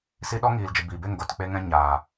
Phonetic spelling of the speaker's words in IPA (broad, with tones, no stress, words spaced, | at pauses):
si˦ ɗɔ˦ŋiː˨ld͡ʒə˨ biː˨be˦˨ŋɡo˨t k͡pe˦ŋɛ̃˦ɲaː˨